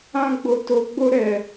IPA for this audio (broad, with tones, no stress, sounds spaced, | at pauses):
ã˧ ɡ͡b o˨ t o˨ ɡ͡b o˧ ɾ ɛ˨